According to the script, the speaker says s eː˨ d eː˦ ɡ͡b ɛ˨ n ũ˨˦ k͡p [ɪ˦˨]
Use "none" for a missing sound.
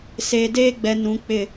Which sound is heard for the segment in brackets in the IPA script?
ɪ˦˨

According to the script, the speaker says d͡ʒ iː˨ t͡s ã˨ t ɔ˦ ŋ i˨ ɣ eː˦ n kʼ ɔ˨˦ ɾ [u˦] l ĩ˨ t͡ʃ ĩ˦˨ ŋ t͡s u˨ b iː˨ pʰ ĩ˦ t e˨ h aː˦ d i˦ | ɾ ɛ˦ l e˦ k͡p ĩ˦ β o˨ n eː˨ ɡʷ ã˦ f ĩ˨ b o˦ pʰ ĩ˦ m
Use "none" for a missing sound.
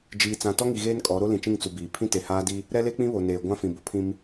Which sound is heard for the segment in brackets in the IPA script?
o˦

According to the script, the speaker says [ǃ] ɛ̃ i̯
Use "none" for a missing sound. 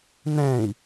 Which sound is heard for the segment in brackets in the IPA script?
n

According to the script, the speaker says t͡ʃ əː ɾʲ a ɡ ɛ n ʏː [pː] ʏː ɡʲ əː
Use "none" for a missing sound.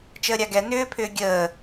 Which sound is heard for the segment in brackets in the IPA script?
pʰ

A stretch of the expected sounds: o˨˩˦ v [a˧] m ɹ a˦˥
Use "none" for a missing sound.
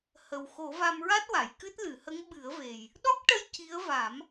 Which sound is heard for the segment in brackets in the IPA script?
a˧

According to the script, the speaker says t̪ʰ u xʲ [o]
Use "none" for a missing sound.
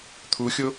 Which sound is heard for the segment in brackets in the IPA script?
o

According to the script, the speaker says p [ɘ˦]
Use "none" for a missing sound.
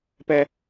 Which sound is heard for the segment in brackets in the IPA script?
ɛ˦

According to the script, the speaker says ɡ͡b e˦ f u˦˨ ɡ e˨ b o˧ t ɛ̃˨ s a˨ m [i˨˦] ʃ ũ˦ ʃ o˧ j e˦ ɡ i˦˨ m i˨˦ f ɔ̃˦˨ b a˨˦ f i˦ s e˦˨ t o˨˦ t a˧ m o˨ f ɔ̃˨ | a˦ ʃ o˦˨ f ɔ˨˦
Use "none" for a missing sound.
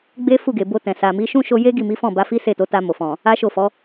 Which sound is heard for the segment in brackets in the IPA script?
i˨˦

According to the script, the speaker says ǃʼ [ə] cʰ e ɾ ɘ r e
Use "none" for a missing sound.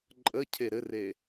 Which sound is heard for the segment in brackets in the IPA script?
ə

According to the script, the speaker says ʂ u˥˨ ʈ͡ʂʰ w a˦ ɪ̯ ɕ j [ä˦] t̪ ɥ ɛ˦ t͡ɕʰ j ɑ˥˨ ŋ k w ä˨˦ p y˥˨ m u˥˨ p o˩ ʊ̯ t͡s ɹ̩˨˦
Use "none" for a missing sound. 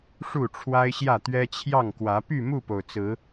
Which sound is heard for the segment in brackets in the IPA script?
ä˥˨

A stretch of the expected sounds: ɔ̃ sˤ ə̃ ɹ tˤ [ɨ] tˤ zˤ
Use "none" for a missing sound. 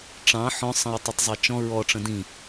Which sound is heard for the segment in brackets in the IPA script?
ɨ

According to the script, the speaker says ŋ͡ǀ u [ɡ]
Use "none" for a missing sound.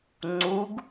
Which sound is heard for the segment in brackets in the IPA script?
ɡ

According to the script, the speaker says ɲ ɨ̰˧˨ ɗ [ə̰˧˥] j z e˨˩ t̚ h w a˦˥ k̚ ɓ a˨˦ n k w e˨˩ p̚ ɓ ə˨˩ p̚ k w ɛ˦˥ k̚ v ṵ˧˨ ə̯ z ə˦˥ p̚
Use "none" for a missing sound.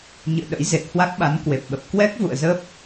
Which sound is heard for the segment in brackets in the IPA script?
ə̰˧˥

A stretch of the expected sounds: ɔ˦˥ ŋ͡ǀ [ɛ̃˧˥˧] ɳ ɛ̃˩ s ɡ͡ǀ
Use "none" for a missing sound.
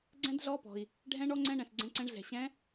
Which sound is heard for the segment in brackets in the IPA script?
ɛ̃˧˥˧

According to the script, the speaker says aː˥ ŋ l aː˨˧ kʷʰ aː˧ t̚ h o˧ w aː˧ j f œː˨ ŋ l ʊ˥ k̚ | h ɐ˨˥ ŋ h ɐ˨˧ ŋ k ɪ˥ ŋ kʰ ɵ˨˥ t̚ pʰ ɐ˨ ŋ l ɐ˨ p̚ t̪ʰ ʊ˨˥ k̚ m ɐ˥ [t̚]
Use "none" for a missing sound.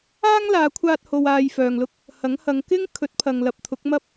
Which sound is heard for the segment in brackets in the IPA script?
p̚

